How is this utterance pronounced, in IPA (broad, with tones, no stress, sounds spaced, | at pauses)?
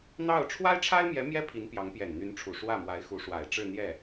n̪ ɑ˥˩ ʊ̯ ʈ͡ʂʰ w a˥ ɪ̯ ʈ͡ʂʰ a˥ ɪ̯ m j ɛ˧˥ m j ɛ˥ pʰ i˧˥ n p j ɑ˧˥ ŋ p j ɛ˨˩ n n̪ y˧˥ n ʈ͡ʂʰ u˨˩ ʂ w ä˥˩ m w a˧˥ ɪ̯ x u˧˥ ʂ w a˨˩ ɪ̯ ʈ͡ʂ ɻ̩˥˧ n̪ j ɛ˥˩